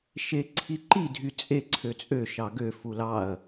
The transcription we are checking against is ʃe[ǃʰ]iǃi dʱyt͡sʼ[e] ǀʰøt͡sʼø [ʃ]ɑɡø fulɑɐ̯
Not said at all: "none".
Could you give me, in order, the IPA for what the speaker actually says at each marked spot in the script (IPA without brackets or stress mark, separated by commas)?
ǀʰ, e, ʃ